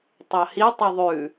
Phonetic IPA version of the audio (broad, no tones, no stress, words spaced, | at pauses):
tˤɑhi tˤʉðˤʉ